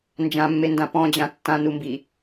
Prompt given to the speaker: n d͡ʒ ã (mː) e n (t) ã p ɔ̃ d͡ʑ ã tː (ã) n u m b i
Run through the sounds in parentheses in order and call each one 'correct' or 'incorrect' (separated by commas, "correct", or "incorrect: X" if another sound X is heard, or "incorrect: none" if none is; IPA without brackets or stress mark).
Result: correct, incorrect: d, correct